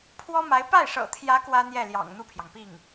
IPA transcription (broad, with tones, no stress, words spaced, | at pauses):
pʰwɔ˥ma˧˥ɪ̯ pa˥˩ɪ̯ʂɤ̰˨˩t̪ʰjä˧˥ kwä˥n̪jɛ˥˩ljɑ̰˨˩ŋ n̪u˥˩pʰjɑ˩ŋpi˥˩ŋ